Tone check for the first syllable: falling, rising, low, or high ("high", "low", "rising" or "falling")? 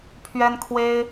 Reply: high